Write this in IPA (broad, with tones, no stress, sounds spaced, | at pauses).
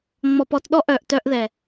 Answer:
ŋ͡m ɔ˧ p ɔ˧ t ɗ ɔ˦ ʔ œ˨ ʔ t œ˧ ʔ ð ɛ˨